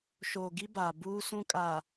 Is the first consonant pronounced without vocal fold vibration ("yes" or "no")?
yes